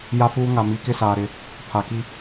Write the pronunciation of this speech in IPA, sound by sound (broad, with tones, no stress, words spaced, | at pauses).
ja˦fuː˦ ŋa˨mi˨˦kɪ˦saː˨ ɾɪ˨ | pʰa˨ki˦